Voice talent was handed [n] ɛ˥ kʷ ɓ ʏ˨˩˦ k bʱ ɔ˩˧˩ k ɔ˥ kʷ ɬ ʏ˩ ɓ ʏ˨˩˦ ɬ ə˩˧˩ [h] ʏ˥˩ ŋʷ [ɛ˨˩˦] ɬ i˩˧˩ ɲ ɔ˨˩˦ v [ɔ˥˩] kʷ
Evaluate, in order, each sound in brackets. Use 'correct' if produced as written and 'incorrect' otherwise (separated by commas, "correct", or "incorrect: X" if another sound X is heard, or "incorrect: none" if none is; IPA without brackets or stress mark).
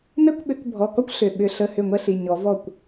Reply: correct, correct, incorrect: ɛ˥, correct